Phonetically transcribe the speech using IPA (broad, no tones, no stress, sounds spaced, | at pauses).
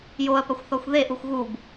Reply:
j o ɐ̯ p ɐ xʷ θ ɔ xʷ ð e ʔ u xʷ ɣ u b